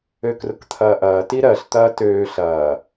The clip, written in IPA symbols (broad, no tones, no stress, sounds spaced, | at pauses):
ø k r ʊ k t̪ʰ ɐː ʔ ɐː t i ɾ ɜ ɬ t̪ ɐː t øː ɬ ɐː